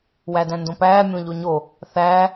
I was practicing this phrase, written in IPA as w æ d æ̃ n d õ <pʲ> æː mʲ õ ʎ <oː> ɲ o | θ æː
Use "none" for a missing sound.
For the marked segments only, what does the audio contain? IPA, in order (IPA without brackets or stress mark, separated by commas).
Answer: p, o